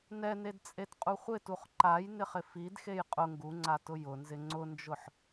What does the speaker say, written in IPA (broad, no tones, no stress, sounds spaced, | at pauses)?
n ɛ n e d t͡sʼ e t qʼ u χʷ ɪ t u χ ǃ a j n ɪ χ ɪ f i d x e j qʼ ʊ ŋ ɡ u ŋ͡ǀ a t ʊ j ʊ n z ɪ ŋ͡ǀ ʊ n d͡ʒ ʊ ħ